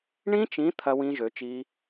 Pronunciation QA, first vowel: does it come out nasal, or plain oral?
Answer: nasal